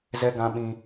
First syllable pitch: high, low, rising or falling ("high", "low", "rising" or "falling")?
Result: high